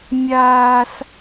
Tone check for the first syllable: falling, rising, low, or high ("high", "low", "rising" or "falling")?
high